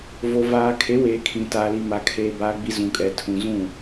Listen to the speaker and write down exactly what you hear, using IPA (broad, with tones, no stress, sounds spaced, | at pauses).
v o˨ v aː˨ kʰ e˨˦ w eː˨ kʰ ĩ˨ t aː˨ l i˨ m a˨ kʰ eː˨ b aː˨ ɡ͡b i˨ z ũ˨ kʼ ɛ˨ tʰ ũ˨ z ũ˦˨